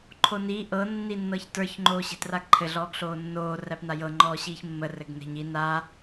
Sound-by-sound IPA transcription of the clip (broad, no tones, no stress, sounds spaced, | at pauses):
ǃʰ o n i ʔ ɤ nː i nː ɤ ç t ə˞ ç ŋ͡ǃ oː ɕ e̤ t r a ɡ ǃʰ ɘ ɮ ɔː ɡ ɬ oː nː oː r æ p n a j ɤ ŋ͡ǃ ɔː ɕ iː ç mː ə r ɘ ɡ n e̤ ɲ i n a